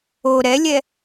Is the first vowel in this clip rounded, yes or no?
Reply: yes